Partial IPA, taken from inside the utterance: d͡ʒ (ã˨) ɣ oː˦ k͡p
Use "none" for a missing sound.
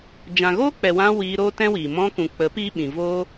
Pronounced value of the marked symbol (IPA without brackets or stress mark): ã˨